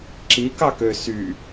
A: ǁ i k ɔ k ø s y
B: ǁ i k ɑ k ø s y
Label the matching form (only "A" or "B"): B